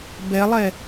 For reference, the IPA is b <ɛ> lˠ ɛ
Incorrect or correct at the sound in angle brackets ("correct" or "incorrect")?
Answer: correct